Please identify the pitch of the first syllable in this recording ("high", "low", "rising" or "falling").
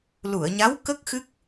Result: low